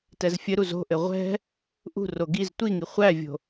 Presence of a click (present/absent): absent